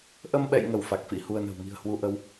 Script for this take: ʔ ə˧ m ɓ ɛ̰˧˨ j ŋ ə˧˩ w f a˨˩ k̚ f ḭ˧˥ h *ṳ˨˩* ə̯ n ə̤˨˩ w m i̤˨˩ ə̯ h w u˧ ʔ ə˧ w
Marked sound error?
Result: yes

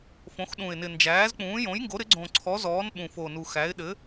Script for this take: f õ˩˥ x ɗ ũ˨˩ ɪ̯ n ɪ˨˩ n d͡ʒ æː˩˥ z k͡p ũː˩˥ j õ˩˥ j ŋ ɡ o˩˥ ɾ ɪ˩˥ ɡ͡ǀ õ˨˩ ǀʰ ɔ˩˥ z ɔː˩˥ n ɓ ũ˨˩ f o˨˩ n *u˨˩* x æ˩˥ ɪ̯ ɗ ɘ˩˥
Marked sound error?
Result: no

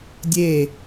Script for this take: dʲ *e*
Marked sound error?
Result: no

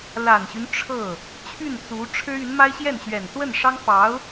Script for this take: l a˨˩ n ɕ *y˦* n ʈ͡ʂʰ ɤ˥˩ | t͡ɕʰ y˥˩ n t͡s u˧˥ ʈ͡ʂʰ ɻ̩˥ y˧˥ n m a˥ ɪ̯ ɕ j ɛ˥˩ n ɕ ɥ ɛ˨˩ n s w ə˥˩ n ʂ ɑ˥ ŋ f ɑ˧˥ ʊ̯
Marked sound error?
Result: no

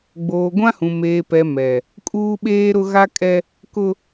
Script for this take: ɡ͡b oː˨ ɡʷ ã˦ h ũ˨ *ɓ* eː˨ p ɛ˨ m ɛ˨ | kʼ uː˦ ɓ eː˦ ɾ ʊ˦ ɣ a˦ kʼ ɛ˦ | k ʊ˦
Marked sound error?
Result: yes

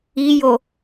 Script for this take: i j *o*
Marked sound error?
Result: no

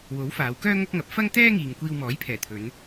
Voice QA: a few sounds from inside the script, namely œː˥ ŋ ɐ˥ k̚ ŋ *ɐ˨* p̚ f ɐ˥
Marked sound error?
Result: yes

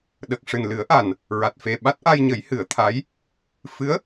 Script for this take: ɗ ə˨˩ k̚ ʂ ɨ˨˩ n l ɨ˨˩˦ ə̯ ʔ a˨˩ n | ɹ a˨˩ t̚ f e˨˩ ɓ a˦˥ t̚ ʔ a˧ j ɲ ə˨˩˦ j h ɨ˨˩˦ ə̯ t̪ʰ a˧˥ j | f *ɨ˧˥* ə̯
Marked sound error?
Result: no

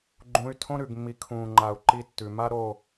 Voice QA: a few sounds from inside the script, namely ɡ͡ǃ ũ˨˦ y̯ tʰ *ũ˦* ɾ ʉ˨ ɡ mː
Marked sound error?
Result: yes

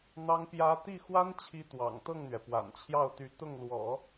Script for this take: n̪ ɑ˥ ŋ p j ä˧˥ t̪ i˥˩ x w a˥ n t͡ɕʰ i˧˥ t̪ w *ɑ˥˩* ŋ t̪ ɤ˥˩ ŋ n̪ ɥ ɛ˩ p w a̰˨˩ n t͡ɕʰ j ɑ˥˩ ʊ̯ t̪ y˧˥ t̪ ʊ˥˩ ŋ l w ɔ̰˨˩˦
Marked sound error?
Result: yes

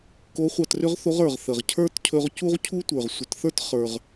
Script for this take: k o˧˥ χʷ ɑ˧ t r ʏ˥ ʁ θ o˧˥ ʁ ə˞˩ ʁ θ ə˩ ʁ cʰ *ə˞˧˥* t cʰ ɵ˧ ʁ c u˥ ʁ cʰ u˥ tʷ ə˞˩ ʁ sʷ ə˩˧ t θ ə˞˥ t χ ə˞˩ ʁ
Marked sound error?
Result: yes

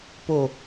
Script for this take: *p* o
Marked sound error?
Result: no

